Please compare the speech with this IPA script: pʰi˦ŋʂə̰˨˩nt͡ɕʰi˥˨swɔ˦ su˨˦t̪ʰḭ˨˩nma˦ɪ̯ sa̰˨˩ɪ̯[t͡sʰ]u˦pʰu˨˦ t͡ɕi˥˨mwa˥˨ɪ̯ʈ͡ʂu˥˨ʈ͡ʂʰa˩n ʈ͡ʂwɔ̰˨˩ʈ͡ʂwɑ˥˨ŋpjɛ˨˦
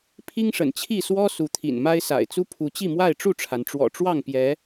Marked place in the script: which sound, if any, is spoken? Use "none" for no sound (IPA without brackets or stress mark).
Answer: t͡s